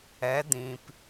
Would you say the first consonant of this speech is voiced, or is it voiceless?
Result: voiced